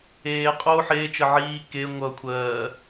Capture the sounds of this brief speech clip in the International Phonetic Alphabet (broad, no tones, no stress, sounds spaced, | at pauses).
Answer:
eː qʼ o ħ eː t͡ʃ ə ʕ iː k e ŋʷ ʌ kʷʰ ɜː